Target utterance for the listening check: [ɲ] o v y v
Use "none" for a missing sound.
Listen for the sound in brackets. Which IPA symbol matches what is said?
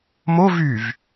m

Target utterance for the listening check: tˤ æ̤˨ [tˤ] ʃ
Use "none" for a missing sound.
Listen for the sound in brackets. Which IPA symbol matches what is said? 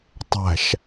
none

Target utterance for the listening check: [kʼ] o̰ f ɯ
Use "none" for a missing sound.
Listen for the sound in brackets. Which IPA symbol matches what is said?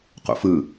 q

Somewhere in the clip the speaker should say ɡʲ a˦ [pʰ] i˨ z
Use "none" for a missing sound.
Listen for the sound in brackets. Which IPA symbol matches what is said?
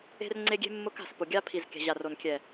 pʰ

